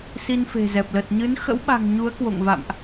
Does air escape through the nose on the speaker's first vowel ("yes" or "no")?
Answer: no